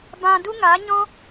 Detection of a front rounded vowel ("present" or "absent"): absent